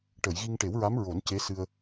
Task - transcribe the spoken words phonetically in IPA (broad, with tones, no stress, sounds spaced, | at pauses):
ʈ ə˨˩˨ j ɣ i˧ ŋ ʈ e˨˩˦ w ɹ a˧˥ m ɹ o˨˩˦ n c e˧˥ s ɨ˧ ə̯